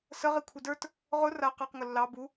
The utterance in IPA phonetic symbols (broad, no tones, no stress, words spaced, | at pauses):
sə ʁikʷʰidə˞t | ʁʊ ra qɑqŋʊ lːɑ bu